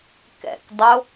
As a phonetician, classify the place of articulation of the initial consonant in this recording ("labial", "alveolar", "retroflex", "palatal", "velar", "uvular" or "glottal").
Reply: velar